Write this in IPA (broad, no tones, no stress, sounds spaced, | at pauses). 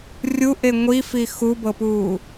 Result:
rʲ u ʔ e ŋʷ i f i x u b ɤ p uː